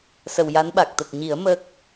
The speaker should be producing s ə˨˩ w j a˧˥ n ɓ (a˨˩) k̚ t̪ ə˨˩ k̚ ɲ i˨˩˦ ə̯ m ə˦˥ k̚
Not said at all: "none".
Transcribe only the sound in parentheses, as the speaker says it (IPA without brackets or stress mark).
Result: a˨˩